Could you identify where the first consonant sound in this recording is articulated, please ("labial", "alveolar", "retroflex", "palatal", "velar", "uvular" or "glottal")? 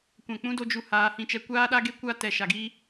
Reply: velar